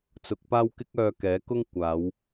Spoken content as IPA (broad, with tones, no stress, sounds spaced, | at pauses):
t͡s ʊ˨˥ k̚ p aː˥ w k ɪ˥ k̚ œː˧ k ɛː˨˥ k ʊ˥ ŋ kʷ aː˨˧ w